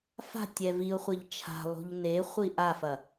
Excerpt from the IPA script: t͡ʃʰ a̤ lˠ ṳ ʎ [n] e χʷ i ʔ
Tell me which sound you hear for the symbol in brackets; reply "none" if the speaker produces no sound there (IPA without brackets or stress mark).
n